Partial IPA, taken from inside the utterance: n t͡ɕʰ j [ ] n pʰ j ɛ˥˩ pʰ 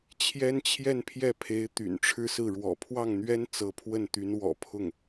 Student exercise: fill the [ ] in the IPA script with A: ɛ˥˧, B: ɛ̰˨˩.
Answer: A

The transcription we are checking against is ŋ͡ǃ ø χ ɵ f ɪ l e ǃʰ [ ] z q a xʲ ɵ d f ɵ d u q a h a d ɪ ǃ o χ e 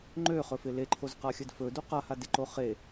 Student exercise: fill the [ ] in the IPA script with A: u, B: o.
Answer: B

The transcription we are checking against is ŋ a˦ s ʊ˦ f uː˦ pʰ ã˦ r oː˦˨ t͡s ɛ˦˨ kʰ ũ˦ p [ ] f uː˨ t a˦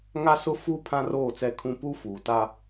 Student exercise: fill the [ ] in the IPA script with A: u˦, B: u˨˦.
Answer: A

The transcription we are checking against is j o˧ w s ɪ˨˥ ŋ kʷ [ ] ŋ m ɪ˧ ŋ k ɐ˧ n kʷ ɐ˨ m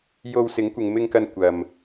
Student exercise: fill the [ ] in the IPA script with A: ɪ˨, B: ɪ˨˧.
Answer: A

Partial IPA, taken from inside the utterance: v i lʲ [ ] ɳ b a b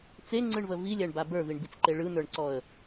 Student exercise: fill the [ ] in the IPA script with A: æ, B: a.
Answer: A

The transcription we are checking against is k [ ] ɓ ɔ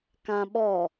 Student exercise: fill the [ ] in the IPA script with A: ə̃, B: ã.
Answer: B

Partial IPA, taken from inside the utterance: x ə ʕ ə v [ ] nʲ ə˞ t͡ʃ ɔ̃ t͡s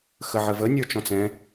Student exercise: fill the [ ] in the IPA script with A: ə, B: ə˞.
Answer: A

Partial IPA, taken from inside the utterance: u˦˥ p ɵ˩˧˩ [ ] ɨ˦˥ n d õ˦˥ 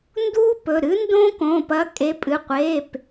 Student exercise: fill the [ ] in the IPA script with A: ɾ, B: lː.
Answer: A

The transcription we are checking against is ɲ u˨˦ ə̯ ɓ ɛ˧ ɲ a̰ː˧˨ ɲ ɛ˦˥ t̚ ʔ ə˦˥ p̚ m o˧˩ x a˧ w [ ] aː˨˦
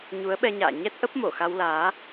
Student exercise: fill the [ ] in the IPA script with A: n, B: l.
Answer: B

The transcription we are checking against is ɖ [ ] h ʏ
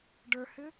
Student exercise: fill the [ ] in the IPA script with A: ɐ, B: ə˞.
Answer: B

